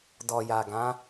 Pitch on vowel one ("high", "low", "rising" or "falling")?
low